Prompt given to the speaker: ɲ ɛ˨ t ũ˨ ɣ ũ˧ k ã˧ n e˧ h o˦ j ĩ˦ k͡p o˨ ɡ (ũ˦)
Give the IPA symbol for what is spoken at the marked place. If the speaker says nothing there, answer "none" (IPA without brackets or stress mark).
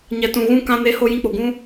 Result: ũ˧